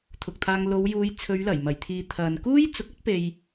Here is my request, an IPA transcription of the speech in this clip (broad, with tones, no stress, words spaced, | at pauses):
t̪ʰʊ˨k̚t̪ʰaː˧ŋ lo˨˧wjuː˨˧j t͡sʰɵ˨˧ɥlɐ˨˩jmɐ˨˩jt̪ʰiː˨ t̪ʰɐ˨n kuː˥jt͡sʊ˨˥k̚ɐ˥t̚ pe˧j